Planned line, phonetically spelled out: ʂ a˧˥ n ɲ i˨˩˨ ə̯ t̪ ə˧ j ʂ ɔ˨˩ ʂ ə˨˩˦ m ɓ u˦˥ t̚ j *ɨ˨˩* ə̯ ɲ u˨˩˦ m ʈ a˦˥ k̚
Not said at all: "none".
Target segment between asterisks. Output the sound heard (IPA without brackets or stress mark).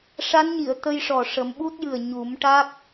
ɨ˨˩